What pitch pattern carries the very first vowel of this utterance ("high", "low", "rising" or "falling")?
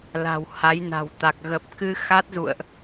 low